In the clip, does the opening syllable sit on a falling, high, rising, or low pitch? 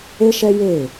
high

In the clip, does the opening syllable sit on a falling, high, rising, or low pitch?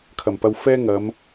low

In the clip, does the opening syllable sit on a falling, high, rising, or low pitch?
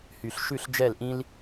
low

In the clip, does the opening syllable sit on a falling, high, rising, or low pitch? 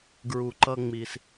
low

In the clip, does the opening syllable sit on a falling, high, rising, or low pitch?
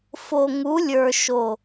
low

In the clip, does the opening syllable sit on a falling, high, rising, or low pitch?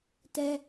high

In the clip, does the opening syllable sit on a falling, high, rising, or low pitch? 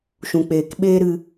low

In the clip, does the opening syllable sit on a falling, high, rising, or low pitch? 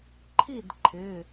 falling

